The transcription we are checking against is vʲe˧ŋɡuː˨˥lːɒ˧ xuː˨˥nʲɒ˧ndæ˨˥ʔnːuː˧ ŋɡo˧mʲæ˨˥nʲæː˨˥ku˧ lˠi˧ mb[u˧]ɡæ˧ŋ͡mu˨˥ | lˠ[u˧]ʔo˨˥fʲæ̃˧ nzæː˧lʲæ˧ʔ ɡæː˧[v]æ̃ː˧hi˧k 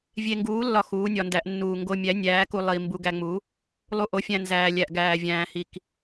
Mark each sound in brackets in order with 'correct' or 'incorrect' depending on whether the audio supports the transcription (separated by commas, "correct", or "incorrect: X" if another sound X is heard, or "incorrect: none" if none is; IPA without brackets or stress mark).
correct, correct, incorrect: vʲ